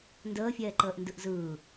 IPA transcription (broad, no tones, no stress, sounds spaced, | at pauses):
n d əː fʲ ɛː ǃ əː ʔ n d ɯ ʔ z ɯː